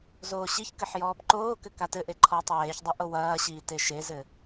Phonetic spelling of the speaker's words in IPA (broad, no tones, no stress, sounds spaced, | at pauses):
z oː ɕ i ç k ɘ ħ j ɔː b ǃ oː k ɘ k a t ɘ ʔ e ǃʰ ɔː tˤ w eː ç dˤ ɛ ʔ o w ɐː ɕ iː t e ʃ e z ɘ